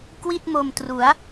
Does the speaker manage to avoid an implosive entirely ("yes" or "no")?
yes